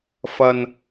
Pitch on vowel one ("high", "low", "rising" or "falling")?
low